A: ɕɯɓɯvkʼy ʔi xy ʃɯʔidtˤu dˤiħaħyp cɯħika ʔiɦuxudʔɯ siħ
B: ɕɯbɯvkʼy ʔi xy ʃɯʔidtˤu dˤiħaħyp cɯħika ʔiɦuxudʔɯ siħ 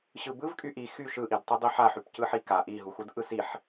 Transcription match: B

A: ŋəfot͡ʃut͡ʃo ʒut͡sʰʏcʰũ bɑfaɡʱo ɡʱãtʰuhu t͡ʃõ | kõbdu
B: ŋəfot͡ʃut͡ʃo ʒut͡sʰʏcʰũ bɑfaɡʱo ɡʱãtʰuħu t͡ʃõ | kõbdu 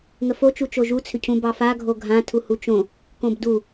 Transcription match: A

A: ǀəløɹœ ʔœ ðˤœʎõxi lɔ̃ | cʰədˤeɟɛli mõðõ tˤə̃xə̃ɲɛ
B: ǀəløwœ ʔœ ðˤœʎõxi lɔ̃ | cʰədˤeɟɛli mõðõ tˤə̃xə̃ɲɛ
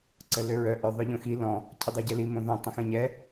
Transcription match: A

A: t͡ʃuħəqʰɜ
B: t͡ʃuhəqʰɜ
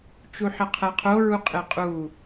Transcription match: A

